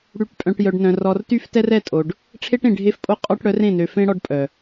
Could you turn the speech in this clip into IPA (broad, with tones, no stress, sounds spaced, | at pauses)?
ɽ y˨˦ ʈ pʼ œ̃˨ ʈ j œ˨ ɖ n œ̃˨ r ɔ˨ r t y˦ f t ɛ˦ r ɛ˦˨ tʼ o˨ ɖ | ʈ͡ʂʰ e˦ ʈ ẽ˨ ɖʱ e˦ f pʼ o˦ qʼ ɔ˦ ʈ ɽ œ˨˦ r ẽ˦˨ n ø˨ f ẽ˦ ɽ ɔ˦ ɖ pʼ œ˨